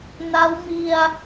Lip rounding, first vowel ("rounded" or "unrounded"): unrounded